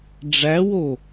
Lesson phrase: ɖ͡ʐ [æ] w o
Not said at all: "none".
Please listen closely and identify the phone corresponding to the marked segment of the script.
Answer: æ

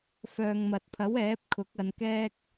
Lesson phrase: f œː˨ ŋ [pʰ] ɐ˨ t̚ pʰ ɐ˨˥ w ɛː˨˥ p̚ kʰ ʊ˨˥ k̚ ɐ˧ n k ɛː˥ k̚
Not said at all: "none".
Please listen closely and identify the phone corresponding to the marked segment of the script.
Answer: m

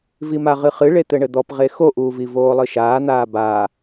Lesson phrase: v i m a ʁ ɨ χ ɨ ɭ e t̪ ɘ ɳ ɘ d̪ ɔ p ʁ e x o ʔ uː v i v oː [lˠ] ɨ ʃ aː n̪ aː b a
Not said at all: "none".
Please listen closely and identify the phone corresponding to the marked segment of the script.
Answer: lˠ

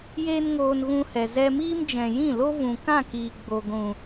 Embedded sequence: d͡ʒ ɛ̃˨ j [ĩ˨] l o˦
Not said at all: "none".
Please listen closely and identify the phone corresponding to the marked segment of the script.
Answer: ĩ˦˨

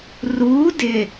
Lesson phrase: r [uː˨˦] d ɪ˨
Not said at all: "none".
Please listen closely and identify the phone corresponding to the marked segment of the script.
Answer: uː˨˦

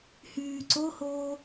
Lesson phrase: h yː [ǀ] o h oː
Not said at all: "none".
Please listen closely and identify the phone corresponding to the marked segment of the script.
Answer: ǀ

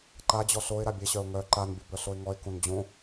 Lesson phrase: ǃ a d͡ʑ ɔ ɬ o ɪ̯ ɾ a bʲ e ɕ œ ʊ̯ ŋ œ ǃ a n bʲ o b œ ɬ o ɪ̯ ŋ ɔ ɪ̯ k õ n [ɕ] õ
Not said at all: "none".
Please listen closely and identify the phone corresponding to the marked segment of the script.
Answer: d͡ʑ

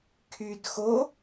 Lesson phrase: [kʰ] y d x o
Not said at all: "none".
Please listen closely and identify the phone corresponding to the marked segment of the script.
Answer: kʰ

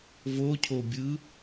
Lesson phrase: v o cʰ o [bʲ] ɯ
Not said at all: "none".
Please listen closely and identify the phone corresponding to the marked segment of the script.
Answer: bʲ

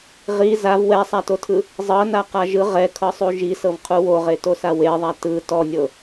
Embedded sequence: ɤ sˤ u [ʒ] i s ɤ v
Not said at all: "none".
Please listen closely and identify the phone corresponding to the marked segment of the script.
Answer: ʒ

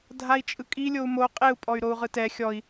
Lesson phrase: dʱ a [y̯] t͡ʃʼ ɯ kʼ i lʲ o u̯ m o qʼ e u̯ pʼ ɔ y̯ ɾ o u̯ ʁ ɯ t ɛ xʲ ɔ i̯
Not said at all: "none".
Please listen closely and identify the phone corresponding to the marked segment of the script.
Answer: i̯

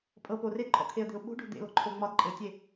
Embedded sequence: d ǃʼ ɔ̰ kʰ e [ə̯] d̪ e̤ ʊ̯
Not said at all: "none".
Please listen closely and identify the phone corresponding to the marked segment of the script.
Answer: ə̯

